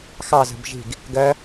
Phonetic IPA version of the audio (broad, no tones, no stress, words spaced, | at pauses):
xɑ zə̤bʒi̤ɡ | ɡɜ